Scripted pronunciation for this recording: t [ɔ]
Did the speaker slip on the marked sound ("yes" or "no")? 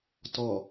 no